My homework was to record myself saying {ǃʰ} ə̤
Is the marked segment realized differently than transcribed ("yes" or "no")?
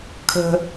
yes